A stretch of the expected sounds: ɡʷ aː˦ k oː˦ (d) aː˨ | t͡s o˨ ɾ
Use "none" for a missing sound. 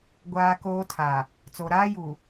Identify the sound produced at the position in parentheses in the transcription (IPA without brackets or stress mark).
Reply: tʰ